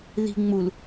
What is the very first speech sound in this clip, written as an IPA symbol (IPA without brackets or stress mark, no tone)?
ð